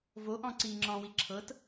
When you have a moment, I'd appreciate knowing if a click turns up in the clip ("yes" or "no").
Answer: yes